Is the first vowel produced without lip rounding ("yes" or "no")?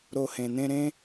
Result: no